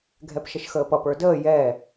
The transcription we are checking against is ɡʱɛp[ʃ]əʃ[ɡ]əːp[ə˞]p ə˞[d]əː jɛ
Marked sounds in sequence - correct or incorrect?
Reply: correct, incorrect, incorrect, correct

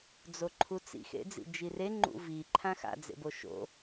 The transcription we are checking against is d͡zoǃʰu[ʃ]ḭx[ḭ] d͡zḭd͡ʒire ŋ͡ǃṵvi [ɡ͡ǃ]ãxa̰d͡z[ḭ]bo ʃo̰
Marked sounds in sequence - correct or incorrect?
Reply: incorrect, incorrect, incorrect, incorrect

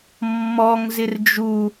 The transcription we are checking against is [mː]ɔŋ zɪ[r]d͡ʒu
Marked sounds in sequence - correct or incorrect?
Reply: correct, correct

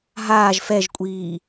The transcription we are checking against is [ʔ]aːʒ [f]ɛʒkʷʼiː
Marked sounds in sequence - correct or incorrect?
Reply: incorrect, correct

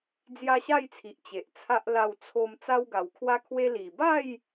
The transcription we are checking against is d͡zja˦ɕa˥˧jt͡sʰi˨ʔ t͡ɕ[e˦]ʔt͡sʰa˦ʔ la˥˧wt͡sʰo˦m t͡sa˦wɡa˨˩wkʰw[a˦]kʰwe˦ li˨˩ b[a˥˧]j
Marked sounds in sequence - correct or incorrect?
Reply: incorrect, correct, correct

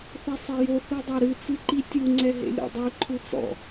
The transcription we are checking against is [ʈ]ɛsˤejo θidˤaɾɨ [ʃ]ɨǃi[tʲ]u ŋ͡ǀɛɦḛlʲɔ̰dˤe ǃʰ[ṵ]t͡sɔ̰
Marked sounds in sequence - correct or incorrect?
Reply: incorrect, incorrect, correct, incorrect

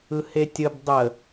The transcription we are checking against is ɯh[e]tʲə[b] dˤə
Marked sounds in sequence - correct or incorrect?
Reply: correct, correct

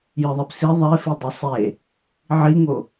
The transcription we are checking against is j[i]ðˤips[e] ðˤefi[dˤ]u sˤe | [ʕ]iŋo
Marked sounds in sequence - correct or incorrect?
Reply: incorrect, incorrect, correct, correct

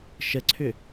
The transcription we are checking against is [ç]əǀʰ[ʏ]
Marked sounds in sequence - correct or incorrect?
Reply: incorrect, correct

